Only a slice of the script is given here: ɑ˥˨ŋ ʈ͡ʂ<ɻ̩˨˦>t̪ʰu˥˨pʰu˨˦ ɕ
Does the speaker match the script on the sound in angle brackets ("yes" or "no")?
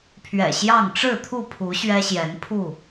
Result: no